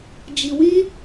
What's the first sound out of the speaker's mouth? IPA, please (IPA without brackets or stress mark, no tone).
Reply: d͡ʒ